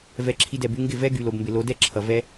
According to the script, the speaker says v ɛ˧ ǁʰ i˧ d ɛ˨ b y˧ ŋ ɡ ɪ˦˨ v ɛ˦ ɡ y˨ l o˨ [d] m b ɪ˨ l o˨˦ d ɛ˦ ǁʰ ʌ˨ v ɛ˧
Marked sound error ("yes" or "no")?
yes